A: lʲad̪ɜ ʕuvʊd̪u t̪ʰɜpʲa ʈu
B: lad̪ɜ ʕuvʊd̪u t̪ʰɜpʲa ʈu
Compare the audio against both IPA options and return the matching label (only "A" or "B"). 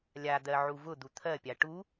A